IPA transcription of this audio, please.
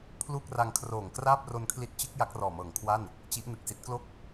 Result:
pʰ l uː˥˩ k̚ r a˧ ŋ kʰ r oː˨˩ ŋ k r aː˥˩ p̚ r o˧ n kʰ l i˦˥ t̚ t͡ɕ ɯ˦˥ k̚ j a˦˥ k̚ r ɔː˨˩ m ɤː˨˩ ŋ kʰ w a˥˩ n | t͡ɕ i˦˥ ʔ n ɯ˨˩ k̚ s i˦˥ t̚ k l o˥˩ k̚

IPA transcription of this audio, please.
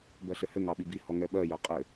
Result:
b ɜ ɬ ɘ h ɘ ŋ ɑ ɓ i b i h ɔ ŋ ɛ ɓ ɜ j ɜ qʼ ɘ

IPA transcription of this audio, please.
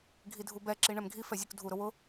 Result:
ɡʱ i dʱ u b ɛ ǁ i ɳ ɛ m ɡʱ i f ɛ zʲ u k dʱ u ɾ ʊ w ʊ

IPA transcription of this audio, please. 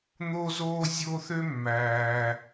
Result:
n̪ o˦ z oː˦ zʲ o˦ θ ø˥ mː æː˩

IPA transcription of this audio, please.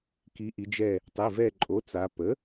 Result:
k i˩˧ ʔ i˩˧ d͡ʒ ɛ˧˩ | tˤ i˩˧˩ v ɛ˧˩ ǃʼ o˩˥ t͡s a˩˧ p ə˩˥

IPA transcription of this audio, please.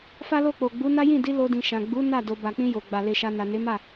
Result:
f a˦ l o˦˨ k͡p o˨ ɡ͡b u˨˦ n a˦ j ĩ˦˨ d i˧ l o˧ d ĩ˨ ʃ ã˨ ɡ͡b u˨˦ n a˦˨ d o˧ b a˨ k͡p ĩ˧ j o˨ ɡ͡b a˨ l e˧ ʃ a˧ n a˨ n e˨˦ m a˦˨

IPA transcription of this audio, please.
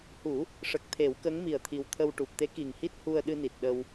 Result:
h u˨˩˦ | ʂ ə˨˩ k̚ t̪ʰ e˨˩˦ w k ə˧˥ ŋ m i˨˩ ə̯ t̪ʰ i˨˩ w t̪ʰ ə˧ w ʈ u˨˩ p̚ t̪ e˧˥ k i˨˩ ŋ h i˦˥ t̚ h u˧ ə̯ ɗ ɨ˧ n i˨˩ t̚ ɗ ə˧ w

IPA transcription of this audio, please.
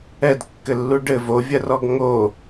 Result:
ɛ d kː ɘ lː u ɖ ɘ v o vʲ ɐ r ɔ ɡ ŋ o

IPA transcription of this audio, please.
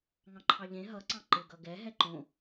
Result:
ŋ ɑ̃ ǃʰ ɑ ʎ ẽ ɦ ʌ ǀ ɑ̃ ǃ ɪ ɡ ʌ ɡ ɛ ɦ ɛ ǃ õ

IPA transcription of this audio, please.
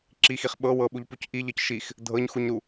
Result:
ǁ i x i χ ɓ ɤ w ɤ ɓ u ʎ p u c ʔ i ʎ ɤ c ʃ i x | dʱ ɤ ɲ x u ɲ ɾ u

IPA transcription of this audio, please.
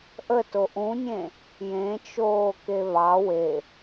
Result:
ʔ ə t o ʔ ũ nʲ ẽ | j ẽ t͡ʃ oː k e β ɑ w e

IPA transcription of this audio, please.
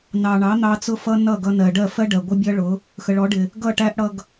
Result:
n ɑ˨ ɳ ɑ˨˦ n̪ ɑ˧ t͡s ʊ˧ f ʌ˧ n ʌ˦˨ ɡ ʌ˧ n ɜ˨ ɖ ɜ˦˨ f ɜ˦ ɖ ɜ˨ ɡʷ ə˦ bʲ ʌ˦ ɭ ʊ˨˦ | x ə˨ ɭ ɔ˨˦ ɖ ɪ˨ | ɡ ʌ˦˨ ʈ æ˦ ʔ ɽ ʌ˧ ɡ

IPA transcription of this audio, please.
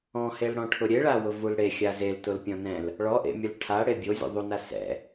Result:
ɔ̃ h e l ɽ ɔ̃ ʈʰ ʊ ɾʲ e ɭ a w ʊ v u l ɽ e xʲ a z e l t ʊ l pʲ ɔ̃ n ɛ̃ l | ɭ ɔ ʔ ḛ mʲ ʊ l ʈʰ a ɽ e bʲ o zʲ ṵ ðˤ u n a s ɛ̰

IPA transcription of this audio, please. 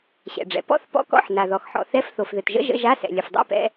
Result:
ɕ ɛ̰˩ ɖ͡ʐ ɛ̰˩ p ɔ̰˧˥˧ θ p ɔ̰˧˥˧ k ɔ̰˧˥˧ ħ n a˩ ð ɔ˩ x ħ ɔ̰˩ θ ɛ˧˥˧ f θ o˩ f ð ɘ˩ t ʒ ə̰˧˥˧ ʒ ə̰˧˥˧ ʒ a˧˥˧ s ɛ̰˩ lʲ ɘ˩ f dˤ ɛ̰˧˥˧ p ɛ̰˧˥˧

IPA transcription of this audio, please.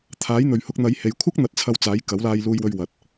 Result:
t̪ʰ aː˨˥ j n̪ ɵ˨ ɥ h ʊ˧ k̚ n̪ ɐ˨˧ j h e˨ j kʷʰ ɐ˥ k̚ n̪ ɐ˧ t̚ t͡sʰ ɐ˧ w t͡s aː˨˥ j k ɐ˨˥ w l aː˧ j l uː˧ j w ɵ˧ ɥ w ɐ˨ t̚

